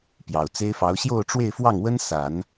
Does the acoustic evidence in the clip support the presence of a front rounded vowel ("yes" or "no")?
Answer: no